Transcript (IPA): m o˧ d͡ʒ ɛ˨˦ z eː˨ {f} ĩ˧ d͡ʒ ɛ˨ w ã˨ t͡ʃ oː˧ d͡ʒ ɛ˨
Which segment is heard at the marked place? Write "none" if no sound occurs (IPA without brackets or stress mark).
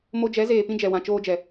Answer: p